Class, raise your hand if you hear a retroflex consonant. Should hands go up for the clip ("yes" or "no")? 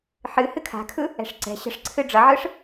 yes